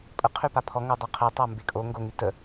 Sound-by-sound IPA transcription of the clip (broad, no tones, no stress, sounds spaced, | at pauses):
pʼ ə qʰ y p a pʰ ɔ ŋ o dˤ a qʰ e tˤ a m b e kʼ o ŋ ɡ o ŋ y t ə